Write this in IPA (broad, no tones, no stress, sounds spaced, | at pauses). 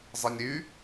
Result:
zˤ ə nʲ ɾ y